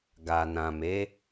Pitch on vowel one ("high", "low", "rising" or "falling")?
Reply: low